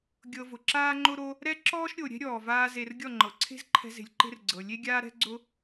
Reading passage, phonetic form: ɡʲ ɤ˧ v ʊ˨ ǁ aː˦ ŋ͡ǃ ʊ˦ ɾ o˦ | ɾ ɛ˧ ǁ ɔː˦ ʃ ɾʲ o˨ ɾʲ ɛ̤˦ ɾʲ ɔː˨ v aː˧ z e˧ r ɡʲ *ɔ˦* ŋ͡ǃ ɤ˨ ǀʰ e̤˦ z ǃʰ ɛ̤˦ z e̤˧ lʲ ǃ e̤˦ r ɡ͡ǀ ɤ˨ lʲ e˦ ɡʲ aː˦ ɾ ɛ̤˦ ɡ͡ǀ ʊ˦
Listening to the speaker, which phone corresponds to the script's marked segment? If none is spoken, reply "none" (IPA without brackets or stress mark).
ɔ˦˨